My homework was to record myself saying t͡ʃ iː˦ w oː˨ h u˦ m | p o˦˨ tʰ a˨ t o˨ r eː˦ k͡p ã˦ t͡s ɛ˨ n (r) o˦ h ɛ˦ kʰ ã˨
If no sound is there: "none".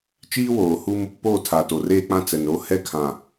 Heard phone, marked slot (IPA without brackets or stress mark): ɾ